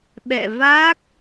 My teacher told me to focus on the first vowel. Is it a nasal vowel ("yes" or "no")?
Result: no